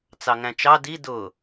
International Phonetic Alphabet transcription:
t͡s ɑ ŋ æ̃ t͡ʃ ɑ d i d ʊ

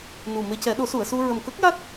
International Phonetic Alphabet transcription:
n u˨˩ m e˧ c ɛ˨˩˦ ɗ o˨˩˦ s u˨˩˨ ə̯ s u˧ ɹ ə˨˩ m k ə˦˥ k̚ j a˦˥ t̚

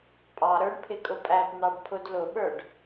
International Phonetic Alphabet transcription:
pʼ ɑ ɾ ə˞ ɳ pʰ ɪ kʼ ʊ pʼ æ p n̪ ɑ ɖ pʰ ʊ d l ʊ ɓ ə˞ ɖ

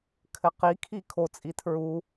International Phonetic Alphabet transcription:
kʰ ɘ q i kʰ i kʰ o t͡sʼ i tʰ ɹ u

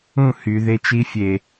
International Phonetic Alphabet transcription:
ũ˦˨ h y˨ ð e˧ t͡ʃ i˧ fʲ e˨

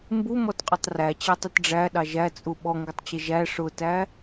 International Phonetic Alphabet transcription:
m b u m ɔ t qʼ ʊ tˤ r æ t͡ɕ æ tˤ ʊ t ɖ͡ʐ æ ɗ ɑ ʒ æ t͡sʼ u ɓ ɔ ŋ ɡ ʊ tˤ t͡ɕ ɪ ʒ æ ʂ ʊ t æ

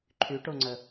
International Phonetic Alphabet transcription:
ǃʰ y ʈ o ŋ͡ǀ ə

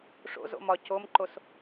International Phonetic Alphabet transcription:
ʂ o̰ z o̰ m ɒ c o m ǃ o s

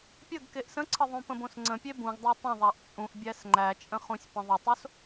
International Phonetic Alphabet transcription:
pʲ ə ɡ k e ʔ s ə̃ ǀʰ ə ðˤ ũ p ə̃ b õ s ŋ͡ǀ ə̃ pʲ e b ũ ɡ dˤ æ tˤ ə̃ ðˤ a ʔ t͡sʼ ũ ʔ bʲ æ s ŋ͡ǃ æ t͡ʃʼ ə̃ χ ũ sʲ p ə̃ ðˤ ə tˤ o s

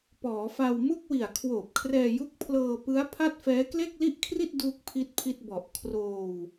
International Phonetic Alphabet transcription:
p ɔː˩˦ f a˧ w m u˥˩ k̚ w i˨˩ a̯ kʰ w oː˨˩ p̚ kʰ r ɛː˧ j u˦˥ k̚ pʰ l ɤː˧ p ɯ˦˥ a̯ pʰ a˥˩ t̚ f ɛː˦˥ k l e˥˩ k̚ l i˥˩ ʔ kʰ r i˥˩ t̚ d uː˥˩ k̚ pʰ i˥˩ t̚ pʰ i˥˩ t̚ b ɔ˨˩ ʔ kʰ r oː˧ w

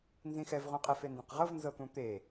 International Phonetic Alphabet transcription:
n z ĩ x ɛ v ʁ ũ qʼ ɛ f e n d ĩ q ʁ ɤ v n z ɤ t̪ ũ t̪ e

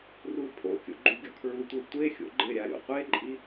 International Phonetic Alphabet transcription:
r u pʰ o̰ kʲ o̰ ɡ͡ǃ u ɡʲ ɔ kʰ ɹ u tʷ e tʷ e xʲ o̰ ɡ͡ǃ ɪ ɾʲ a ɾʲ o̰ qʷ e ǃʼ i

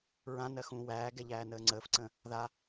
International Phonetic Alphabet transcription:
ɹ ã n ɜ x ũː w æː ɡ ɛ ʎ æː n əː ŋ͡ǀ əː f ǀ ə̃ː | ð a

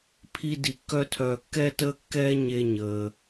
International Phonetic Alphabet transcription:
pʰ i˥ d i˧ kː œ˥ tʰ œː˧ kː ɛ˥ t əː˥ kː ɛː˥ ɲ e˧ ɲ əː˩

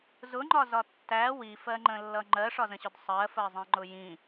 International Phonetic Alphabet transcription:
z ʊ ŋ͡ǃ ɒ z ɒ tː æ w i f ɜ ŋ͡ǃ ə̃ lː ʌ ŋ͡ǃ ɜ ʂ ɒ z ə̃ ɕ ʊ d sˤ ɜ f ɜ zˤ ĩ ŋ͡ǃ ʊ j ĩ

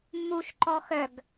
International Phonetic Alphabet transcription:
mː u ʃ ǃ ɔ x œ ɡ

